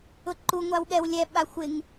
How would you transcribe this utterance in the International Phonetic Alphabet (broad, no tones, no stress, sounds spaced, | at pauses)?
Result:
ʊ ǃ u ŋʷ a w ɠ ɛ w lʲ ɛ ɓ a xʷ ɪ ŋ